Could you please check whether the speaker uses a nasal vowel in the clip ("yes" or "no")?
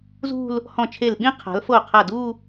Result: yes